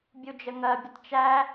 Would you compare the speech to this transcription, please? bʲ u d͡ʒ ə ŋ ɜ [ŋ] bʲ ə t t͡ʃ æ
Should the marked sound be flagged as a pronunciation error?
yes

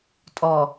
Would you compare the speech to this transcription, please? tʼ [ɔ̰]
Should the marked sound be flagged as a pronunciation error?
yes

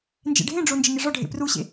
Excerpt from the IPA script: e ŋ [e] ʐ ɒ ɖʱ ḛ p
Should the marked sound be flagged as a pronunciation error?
no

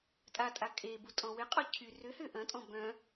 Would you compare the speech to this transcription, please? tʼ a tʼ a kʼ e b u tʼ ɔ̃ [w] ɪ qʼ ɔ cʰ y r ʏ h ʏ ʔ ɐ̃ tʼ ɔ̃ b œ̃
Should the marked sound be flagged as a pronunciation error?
no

